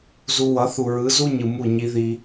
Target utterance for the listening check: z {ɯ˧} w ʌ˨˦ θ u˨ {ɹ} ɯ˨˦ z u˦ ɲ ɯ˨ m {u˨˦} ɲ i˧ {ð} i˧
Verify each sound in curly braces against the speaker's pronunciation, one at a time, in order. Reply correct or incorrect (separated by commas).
incorrect, correct, incorrect, correct